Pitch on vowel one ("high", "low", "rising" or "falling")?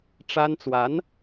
high